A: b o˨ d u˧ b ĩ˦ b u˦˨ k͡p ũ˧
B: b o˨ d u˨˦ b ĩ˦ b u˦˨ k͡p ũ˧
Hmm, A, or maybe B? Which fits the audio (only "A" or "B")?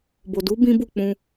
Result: B